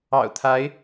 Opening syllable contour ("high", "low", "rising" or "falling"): low